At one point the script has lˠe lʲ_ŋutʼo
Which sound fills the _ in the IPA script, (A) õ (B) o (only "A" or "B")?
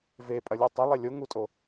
B